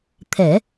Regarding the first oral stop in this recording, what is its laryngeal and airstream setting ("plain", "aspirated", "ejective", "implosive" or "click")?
aspirated